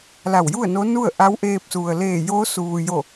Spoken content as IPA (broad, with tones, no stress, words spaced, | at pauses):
la˧˩wju˥˨ə̯no˧˥nu˥˨ə̯ ʔa˧˥wʔeː˧p̚su˩ə̯ leː˧˩joː˧˥suː˩jo˧˩